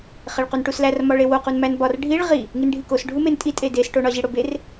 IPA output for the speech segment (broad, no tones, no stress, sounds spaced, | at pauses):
χ e ɭ q u n ʈ u s l æ r m ɒ ɭ e w o q u n m æ n b ɒ r ɖʱ i ɭ ʁ i | ŋ i n ɖʱ i k o s ɖʱ u m e n tʼ i tʼ e d e s ʈ o ɳ ɒ ʑ i ɽ o b e r